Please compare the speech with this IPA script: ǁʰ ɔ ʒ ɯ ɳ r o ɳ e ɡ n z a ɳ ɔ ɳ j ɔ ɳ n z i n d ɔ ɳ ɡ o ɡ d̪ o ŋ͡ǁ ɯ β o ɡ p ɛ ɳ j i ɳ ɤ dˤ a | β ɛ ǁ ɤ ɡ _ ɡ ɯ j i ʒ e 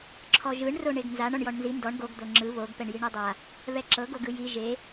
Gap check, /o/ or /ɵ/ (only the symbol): o